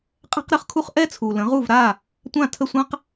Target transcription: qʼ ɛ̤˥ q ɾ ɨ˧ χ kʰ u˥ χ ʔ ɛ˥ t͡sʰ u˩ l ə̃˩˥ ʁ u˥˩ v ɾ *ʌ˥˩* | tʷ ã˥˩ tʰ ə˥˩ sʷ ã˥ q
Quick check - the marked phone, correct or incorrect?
incorrect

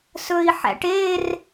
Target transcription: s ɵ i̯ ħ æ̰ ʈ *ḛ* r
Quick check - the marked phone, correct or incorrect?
incorrect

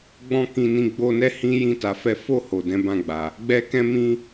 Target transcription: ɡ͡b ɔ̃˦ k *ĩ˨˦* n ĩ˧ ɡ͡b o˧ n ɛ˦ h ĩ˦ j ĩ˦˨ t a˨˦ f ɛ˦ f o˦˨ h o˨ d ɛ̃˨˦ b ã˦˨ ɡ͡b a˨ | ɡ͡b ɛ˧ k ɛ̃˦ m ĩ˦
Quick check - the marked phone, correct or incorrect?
incorrect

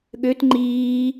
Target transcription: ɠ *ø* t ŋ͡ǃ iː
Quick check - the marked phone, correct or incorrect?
correct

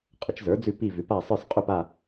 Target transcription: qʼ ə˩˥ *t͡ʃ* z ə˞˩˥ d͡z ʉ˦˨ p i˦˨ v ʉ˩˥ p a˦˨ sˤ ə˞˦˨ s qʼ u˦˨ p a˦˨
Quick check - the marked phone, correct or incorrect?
correct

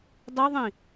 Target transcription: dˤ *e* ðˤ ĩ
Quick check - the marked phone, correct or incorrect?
incorrect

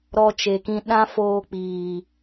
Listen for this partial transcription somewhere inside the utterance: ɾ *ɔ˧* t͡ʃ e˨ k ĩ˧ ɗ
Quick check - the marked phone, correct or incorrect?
correct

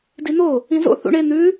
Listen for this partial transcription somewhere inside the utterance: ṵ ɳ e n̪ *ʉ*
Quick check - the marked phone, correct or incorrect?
correct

